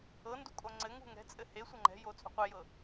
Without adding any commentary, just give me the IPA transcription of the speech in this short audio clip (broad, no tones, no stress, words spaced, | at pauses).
ɤndu kʼoŋ͡ǀɘŋṳ ŋɛ̤t͡sʼɘ he sʷɤŋ͡ǃɛ̤jo t͡sʼṳqʷejɤ